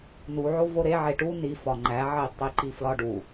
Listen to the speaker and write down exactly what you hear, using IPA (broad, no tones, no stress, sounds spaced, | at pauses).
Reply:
n u ʕ o v o ɾ e ʕ e ʈ u n i f ɒ ŋ͡ǃ æ ʕ i tˤ i ǃ i f l ɒ ɖ u